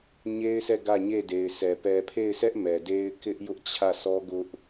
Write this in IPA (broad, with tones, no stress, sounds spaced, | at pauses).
ɲ e˦ ɪ̯ s ɛ˦˨ ɡ ä˦˨ ɲ e˦˨ d e˨ ɪ̯ sʰ ɛ˨ p ɛ˨ pʰ e˦˨ ɪ̯ sʰ ɛ˦ ʔ m ɛ˨ d e˦ ɪ̯ k ɪ˦ ʔ j ʊ˦ ʔ t͡ɕʰ ä˦˨ s ɔ˦ ɡ ʊ˦ ʔ